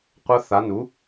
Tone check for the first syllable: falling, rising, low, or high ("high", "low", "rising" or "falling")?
rising